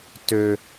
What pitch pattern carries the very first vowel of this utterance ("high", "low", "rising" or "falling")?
high